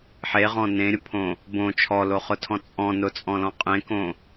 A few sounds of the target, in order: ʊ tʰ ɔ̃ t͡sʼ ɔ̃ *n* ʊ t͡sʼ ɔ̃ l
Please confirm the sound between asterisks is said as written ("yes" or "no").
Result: yes